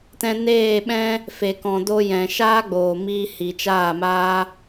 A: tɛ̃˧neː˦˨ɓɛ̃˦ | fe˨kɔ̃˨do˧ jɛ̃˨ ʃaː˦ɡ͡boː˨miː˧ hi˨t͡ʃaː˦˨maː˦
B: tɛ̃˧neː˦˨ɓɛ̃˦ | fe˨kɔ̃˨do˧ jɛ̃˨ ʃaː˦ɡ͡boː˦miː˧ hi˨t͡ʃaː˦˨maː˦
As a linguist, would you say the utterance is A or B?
A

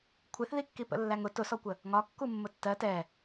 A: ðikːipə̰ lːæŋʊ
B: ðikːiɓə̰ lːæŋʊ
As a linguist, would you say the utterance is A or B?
A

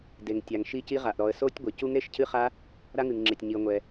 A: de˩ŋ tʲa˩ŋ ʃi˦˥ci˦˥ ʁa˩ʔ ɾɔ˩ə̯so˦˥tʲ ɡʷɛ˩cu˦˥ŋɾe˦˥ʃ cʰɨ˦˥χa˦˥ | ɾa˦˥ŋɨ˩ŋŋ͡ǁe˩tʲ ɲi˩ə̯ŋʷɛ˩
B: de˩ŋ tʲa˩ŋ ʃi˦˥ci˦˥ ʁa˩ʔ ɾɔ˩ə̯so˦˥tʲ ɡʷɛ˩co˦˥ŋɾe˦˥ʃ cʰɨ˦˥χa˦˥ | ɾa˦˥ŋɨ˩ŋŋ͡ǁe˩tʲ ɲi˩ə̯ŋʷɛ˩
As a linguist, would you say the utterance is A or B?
A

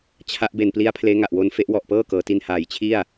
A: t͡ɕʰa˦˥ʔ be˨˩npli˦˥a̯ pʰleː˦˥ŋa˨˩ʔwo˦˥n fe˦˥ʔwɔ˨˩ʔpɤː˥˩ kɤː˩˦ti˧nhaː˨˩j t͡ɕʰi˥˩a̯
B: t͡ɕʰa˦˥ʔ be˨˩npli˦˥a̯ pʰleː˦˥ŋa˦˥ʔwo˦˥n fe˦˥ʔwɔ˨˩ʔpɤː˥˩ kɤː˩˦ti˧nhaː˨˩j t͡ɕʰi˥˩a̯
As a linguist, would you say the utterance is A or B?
A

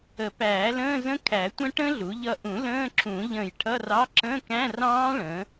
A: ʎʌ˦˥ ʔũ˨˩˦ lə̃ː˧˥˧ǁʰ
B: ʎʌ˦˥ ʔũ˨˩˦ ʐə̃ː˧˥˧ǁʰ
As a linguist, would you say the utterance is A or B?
A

